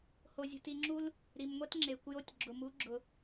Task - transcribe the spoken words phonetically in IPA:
ho˧zʲṳ˧ti˧ŋ͡ǁu˦l | ɾi˨mŋʷɛ˦t ŋ͡ǁe˨kʷ jo˦tʲ ɡ͡ǁʊ˨mu˨˦ɡ͡ǁʊ˨

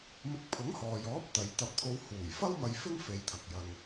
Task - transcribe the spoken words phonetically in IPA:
mɪ˧k̚pʰʊ˨˥ŋhɔː˨jɔː˨˥p̚ t̪ɐ˨jt̪ɐ˧p̚t̪ʰo˧w huː˨˩jfɐ˥wmɐ˧j fɪ˥ŋfe˨j t̪ʰɐ˨k̚jɐ˧ŋ

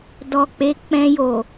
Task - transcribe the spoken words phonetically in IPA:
dɔ˨k͡pe˨˦ k͡pɛ̃˧jo˨

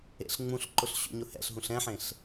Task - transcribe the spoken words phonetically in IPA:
ḛɬŋ͡mũɬǃʊɬ ɕṵɲʊhɛ̰ɬ ɦũɬɛ̃ħẽɬ

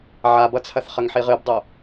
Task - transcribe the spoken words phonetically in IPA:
ʕabʌt͡sʰɐθ χəŋħiʁɨbdˤo

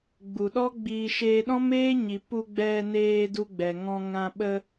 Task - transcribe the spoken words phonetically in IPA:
ɡ͡bu˨ɗɔ˦ɡ͡biː˧ ʃeː˧ɗɔ̃˦meː˦ɲi˨ pu˧ ɡ͡bɛ˧neː˧ du˧ɡ͡bɛ˨ŋɔ̃˧ ŋã˧ ɓə˧

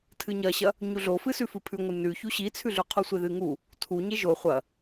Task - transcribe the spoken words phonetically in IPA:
tʰɨɲɐɕɐ | ɲuɮofɨ sʉfɨpʰʉŋʷɨ nʉçu ɕit͡sʰʉɮʉ qʰusʷeðɨŋu | tʰuɲe ʒo χʷɐ

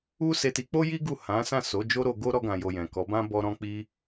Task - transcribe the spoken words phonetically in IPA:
u˦ se˧ti˧k͡po˦ji˦ ɡu˦˨hã˨˦ sã˦˨so˨˦ d͡ʒo˦ɾo˧ɡo˦ ɾɔ˧ɡã˨jo˨ jɛ̃˨kɔ˨˦bã˦ bɔ˧ɾɔ̃˧k͡pi˧

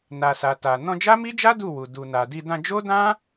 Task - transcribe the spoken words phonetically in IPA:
na˨sa˨ ta˨ nɔ̃˧d͡ʒa˦mi˦d͡ʒa˦ du˦˨wu˨ du˨na˨di˧ dã˧d͡ʒo˦dã˦

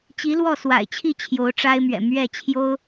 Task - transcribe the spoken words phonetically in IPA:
t͡ɕi˧˥lwɔ˥˩swa̰˨˩ɪ̯t͡ɕʰi˥˩ t͡ɕʰjo˧˥ʊ̯ʈ͡ʂa˥ɪ̯mɥɛ̰˨˩ mɥɛ˥˩t͡ɕʰjo˥ʊ̯

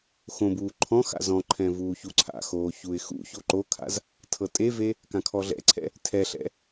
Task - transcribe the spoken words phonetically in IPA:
xõbuː ǃʰɔ̃ xa̰zɔ̃ǃʰɛ̃ vuːçuǀʰa̰xoː çuɪ̯xṵço ǃokʰa̰z | tʰɤtʼeve | kãkʰɔɮɛ̰ǀʰɛ̰ | tʰɛɬɛ̰

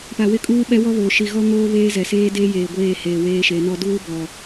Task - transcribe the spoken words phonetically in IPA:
pa˨wɪ˦ kʼuː˦ɓɛ˦wɔ˦βoː˨ ʃi˨ɣɔ˦ ŋoː˦βeː˦ zɛ˨seː˦deː˦ jeː˨ɡʷeː˦˨heː˨ weː˦ʃe˨˦nɔ˦ duː˦bɔ˨

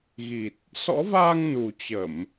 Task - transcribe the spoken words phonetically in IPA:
ɣi˨˩t̚ | sɔ̰˧˥vaː˧ŋnu˨˩ t͡ɕə˧˩˨m

